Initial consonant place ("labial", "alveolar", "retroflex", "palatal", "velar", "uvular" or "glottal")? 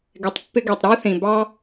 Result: velar